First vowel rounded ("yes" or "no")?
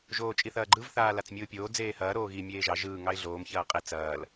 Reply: yes